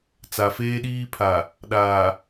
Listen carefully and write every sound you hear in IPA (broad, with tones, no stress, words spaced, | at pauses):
t͡sa˨feː˦ɗiː˦pʰa˨ | ɗaː˨